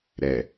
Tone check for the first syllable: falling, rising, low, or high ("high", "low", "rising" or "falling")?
low